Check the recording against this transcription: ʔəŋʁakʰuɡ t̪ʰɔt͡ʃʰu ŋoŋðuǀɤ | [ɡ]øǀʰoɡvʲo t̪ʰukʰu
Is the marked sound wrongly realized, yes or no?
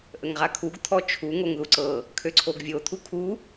yes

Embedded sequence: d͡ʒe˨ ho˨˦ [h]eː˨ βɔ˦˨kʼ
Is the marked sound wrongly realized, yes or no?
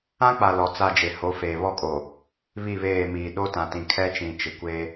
yes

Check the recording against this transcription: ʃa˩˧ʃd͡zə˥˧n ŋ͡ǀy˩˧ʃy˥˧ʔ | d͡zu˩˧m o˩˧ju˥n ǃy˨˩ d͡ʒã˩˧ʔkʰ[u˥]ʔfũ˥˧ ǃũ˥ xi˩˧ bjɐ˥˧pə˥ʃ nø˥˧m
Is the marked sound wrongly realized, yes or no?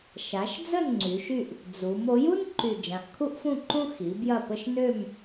no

